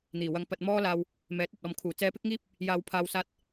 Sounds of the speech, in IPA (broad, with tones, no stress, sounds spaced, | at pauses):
n̪ iː˨˩ w ɐ˧ ŋ p ɐ˧ t̚ m ɔː˥ l aː˧ w | m ɛː˨˥ t̚ ɐ˨ t̚ ɔː˨ m kʰ uː˨˩ t͡s ɛː˧ p ɪ˥ k̚ ŋ iː˥ p̚ | j aː˨ w pʰ aː˨ w s aː˧ t̚